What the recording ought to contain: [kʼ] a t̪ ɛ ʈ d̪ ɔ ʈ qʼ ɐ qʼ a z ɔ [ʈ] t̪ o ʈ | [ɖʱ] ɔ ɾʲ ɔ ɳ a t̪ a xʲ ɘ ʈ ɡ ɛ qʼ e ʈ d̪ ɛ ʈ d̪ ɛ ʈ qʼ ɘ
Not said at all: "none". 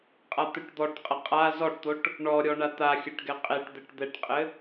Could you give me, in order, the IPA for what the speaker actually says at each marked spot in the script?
qʼ, ʈ, ɳ

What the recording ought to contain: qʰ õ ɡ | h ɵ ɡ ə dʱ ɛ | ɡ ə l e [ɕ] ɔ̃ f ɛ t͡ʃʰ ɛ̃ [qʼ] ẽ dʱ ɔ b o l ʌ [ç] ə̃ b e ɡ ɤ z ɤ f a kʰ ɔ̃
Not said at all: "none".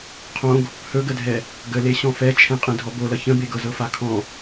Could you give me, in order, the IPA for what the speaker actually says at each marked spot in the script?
ɕ, qʼ, ç

